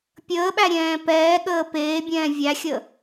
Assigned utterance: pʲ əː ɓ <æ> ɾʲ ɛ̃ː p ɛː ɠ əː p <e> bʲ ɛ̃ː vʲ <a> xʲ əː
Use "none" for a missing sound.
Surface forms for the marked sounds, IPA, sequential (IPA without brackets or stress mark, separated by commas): æ, eː, æ